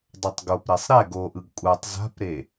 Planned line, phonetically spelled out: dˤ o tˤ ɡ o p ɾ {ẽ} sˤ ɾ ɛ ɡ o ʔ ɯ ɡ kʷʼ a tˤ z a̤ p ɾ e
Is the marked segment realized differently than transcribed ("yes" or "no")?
yes